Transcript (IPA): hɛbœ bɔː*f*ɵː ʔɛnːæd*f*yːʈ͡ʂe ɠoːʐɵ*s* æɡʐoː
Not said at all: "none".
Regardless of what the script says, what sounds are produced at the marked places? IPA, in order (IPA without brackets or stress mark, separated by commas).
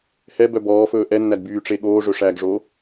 f, b, ʂ